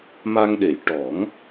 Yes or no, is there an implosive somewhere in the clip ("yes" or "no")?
yes